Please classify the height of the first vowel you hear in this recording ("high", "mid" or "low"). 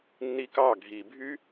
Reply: high